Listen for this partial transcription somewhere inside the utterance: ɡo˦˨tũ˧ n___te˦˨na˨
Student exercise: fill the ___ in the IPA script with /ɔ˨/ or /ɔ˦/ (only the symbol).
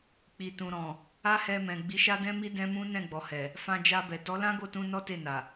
ɔ˦